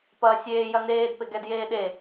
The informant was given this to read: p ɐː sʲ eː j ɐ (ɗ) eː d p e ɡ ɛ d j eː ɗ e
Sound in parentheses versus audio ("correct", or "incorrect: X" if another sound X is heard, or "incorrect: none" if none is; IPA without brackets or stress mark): incorrect: n